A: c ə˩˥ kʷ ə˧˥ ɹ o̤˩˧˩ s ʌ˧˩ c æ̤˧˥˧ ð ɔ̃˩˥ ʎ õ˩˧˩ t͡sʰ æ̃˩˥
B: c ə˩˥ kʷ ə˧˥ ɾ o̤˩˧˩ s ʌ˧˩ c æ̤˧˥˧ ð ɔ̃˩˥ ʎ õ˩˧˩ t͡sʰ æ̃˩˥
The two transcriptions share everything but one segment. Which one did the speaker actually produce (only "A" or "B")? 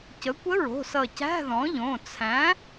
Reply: A